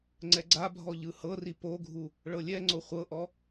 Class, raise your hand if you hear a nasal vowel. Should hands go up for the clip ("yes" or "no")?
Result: no